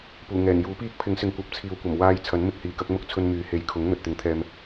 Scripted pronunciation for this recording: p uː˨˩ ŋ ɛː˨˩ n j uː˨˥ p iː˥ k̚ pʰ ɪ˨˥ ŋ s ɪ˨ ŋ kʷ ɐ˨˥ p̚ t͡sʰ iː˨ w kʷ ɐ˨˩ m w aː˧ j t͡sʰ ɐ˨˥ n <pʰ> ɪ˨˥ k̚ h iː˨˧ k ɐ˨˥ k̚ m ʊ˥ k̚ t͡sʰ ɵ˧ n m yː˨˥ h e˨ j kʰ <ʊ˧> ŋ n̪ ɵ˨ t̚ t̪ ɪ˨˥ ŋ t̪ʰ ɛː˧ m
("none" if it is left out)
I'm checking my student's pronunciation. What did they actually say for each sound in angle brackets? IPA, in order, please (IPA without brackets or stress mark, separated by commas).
m, ʊ˨˥